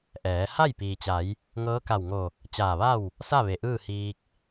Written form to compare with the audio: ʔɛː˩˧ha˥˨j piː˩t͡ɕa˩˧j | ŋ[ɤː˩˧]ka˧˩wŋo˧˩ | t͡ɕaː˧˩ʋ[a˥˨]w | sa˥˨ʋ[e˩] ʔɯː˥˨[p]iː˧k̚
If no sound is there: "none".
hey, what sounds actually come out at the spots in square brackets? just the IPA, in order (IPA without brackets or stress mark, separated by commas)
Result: ɤː˧˥, a˥˨, e˩, h